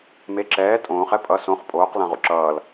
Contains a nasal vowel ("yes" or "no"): yes